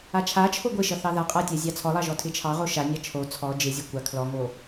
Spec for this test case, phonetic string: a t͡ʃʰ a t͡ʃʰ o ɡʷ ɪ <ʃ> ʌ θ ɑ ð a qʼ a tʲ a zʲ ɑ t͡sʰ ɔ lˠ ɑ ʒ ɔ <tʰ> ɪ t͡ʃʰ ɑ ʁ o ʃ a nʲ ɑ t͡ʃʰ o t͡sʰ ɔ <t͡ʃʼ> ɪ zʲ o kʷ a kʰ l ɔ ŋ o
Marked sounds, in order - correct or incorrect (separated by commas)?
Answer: correct, correct, incorrect